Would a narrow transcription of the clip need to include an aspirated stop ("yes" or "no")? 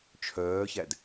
yes